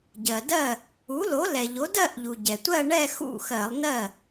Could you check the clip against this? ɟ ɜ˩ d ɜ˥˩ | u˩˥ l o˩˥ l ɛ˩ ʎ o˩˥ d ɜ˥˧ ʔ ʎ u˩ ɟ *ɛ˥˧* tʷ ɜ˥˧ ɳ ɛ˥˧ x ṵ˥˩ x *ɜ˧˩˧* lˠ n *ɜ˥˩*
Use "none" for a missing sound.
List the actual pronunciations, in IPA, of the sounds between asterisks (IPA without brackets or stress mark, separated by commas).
ɛ˩, ɜ˧˩˧, ɜ˥˩